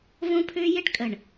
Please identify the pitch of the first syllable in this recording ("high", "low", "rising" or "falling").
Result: high